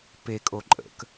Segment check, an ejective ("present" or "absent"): present